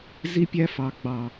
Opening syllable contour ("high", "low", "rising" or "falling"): high